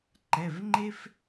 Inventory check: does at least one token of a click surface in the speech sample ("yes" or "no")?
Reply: yes